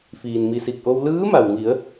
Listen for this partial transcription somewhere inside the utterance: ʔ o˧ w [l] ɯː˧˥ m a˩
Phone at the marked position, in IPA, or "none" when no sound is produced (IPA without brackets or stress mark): l